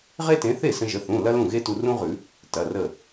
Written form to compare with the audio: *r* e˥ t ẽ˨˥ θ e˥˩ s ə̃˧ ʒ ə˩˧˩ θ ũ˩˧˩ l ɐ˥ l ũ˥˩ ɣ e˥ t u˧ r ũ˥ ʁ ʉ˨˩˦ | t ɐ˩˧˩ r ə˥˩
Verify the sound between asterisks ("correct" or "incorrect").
incorrect